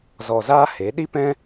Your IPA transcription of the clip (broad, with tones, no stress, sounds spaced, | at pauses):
z ɔ˧ z aː˦ h e˨˦ ɗ i˦ p ɛ̃˦